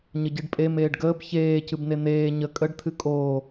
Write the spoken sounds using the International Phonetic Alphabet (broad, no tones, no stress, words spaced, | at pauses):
ɲəɟɨɖpʼe meːɖɡəːb çeː cɨbnen̪eː ɲə kʼəɖ t̪ʰɨkʼoː